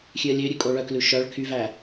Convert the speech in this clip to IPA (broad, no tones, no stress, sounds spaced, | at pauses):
xʲ ʉ ə̯ lʲ ø ɾʲ ʉ kʼ o ɭ œ k l ʉ ʃ œ ɭ kʰ y v æ